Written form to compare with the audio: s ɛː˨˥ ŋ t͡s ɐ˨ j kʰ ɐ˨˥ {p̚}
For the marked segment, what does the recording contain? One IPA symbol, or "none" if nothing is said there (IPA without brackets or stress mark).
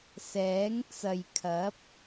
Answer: p̚